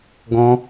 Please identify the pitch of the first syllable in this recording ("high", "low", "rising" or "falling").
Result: high